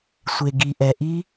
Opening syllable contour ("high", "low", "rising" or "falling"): low